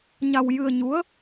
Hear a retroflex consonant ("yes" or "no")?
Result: no